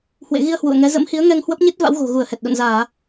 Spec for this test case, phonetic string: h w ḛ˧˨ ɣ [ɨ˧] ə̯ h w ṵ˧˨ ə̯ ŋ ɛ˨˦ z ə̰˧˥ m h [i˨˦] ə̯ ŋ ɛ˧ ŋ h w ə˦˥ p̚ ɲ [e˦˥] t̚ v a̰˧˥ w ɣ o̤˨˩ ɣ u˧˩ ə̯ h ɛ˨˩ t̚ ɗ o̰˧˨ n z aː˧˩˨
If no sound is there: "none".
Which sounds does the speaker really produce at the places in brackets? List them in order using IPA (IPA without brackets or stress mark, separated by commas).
i˧, i˨˦, e˦˥